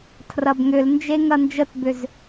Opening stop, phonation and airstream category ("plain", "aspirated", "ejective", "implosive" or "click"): aspirated